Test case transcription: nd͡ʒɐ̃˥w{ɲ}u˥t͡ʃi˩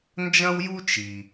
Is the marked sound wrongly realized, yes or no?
yes